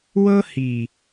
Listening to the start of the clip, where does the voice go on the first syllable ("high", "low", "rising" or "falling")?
high